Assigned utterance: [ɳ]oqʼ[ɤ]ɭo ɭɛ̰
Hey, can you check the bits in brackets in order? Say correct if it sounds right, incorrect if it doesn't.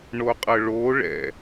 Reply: correct, correct

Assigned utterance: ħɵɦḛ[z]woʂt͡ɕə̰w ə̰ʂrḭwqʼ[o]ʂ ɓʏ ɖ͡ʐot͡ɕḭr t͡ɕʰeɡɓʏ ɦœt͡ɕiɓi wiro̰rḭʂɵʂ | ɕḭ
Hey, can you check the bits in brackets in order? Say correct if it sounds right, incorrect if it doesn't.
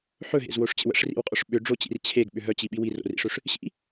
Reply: correct, incorrect

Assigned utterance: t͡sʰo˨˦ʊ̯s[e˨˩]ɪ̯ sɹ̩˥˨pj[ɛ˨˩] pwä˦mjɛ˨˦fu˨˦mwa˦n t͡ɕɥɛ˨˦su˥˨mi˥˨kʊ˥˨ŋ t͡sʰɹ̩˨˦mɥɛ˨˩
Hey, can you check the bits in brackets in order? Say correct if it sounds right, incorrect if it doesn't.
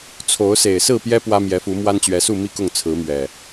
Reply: correct, incorrect

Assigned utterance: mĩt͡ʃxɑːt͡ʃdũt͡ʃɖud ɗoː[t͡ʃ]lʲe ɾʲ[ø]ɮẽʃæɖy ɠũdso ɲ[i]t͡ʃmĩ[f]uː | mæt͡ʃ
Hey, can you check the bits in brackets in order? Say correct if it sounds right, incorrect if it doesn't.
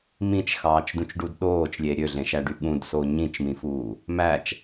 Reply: correct, correct, incorrect, correct

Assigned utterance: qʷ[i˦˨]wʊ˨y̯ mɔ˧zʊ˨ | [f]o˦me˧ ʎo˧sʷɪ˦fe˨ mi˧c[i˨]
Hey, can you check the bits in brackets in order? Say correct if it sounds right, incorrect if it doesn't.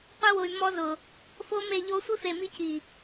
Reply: incorrect, correct, correct

